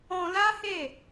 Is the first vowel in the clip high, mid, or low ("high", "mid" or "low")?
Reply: mid